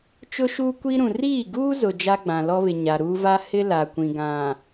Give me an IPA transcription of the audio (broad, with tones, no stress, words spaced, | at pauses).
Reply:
t͡ʃʊ˦ʃuː˦kʷi˦ɾũ˨ riː˦˨ɡuː˦zʊ˨ d͡ʒa˦ɡ͡bã˨lɔ˦βɪ˨ ɲa˨ɾuː˦ va˦hɪ˦ la˨kʷĩ˨ ɡã˨